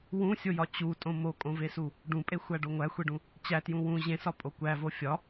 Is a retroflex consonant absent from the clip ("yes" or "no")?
no